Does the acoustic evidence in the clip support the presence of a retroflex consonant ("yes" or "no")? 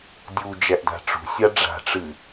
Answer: yes